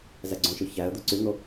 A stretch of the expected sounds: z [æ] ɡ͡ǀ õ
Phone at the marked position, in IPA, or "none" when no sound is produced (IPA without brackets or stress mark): æ